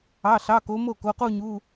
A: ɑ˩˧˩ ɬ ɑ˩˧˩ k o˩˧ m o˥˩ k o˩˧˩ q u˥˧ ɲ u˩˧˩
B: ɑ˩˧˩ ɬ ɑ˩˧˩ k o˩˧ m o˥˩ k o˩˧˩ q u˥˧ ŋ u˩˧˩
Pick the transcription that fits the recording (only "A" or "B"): A